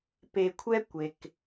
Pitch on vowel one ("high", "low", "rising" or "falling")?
low